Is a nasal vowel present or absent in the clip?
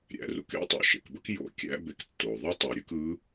absent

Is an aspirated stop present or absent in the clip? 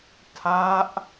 present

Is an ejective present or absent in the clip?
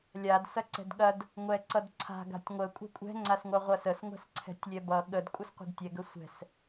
present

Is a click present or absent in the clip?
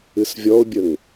absent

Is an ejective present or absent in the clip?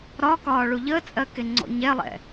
present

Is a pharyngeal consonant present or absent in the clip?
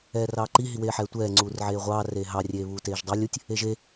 present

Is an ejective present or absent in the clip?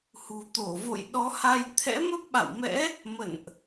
absent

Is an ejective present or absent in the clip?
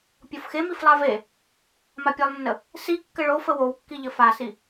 absent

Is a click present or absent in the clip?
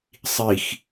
absent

